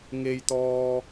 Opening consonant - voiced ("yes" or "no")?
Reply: yes